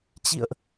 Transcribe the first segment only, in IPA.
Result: t͡ɕ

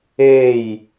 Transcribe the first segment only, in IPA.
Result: e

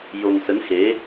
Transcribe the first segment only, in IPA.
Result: j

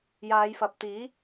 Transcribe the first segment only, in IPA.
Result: j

